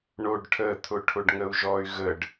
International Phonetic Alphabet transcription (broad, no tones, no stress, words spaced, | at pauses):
ɳoɖʈʰə t̪ʰʊʈʰʊɖŋəu̯ʒɔy̯ ɣəɖ